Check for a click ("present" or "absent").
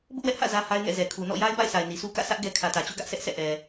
absent